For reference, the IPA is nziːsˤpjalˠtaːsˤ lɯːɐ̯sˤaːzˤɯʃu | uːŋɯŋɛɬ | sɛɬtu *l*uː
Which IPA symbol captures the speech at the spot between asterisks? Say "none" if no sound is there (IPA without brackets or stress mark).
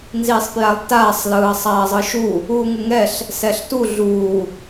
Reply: ɮ